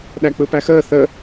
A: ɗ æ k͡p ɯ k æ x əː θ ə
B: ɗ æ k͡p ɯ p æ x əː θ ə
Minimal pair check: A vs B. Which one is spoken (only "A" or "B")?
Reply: B